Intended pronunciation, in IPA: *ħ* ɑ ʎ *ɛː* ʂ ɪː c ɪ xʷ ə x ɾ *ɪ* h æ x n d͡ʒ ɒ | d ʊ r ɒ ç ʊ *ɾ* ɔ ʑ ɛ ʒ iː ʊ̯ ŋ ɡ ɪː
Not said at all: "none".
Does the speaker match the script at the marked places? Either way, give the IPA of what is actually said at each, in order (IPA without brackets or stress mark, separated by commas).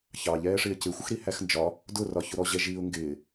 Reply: ç, ɛː, i, ɾ